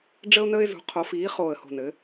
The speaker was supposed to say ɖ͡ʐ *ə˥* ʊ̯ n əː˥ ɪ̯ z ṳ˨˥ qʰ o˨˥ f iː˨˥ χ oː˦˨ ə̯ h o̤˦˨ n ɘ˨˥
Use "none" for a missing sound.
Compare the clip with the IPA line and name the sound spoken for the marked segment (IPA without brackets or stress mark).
ə˥